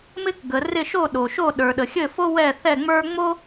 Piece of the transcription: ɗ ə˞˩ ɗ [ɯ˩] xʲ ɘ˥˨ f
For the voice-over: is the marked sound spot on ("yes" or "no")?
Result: no